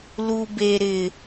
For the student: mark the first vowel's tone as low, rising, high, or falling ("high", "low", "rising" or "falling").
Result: high